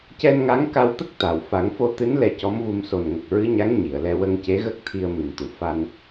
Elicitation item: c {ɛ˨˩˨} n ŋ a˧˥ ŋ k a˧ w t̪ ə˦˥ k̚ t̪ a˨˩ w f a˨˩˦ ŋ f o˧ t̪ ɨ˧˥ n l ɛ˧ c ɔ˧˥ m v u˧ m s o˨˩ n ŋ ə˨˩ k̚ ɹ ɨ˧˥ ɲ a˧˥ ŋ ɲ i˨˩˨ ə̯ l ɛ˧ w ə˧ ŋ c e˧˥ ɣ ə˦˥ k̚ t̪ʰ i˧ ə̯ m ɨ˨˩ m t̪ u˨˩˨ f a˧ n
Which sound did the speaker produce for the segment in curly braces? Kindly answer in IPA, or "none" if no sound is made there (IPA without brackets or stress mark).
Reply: ɛ˧